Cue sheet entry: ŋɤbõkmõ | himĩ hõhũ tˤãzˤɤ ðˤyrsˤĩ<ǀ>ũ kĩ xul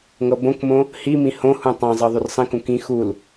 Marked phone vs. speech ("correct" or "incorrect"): incorrect